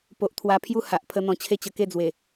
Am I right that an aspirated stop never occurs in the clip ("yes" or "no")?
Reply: no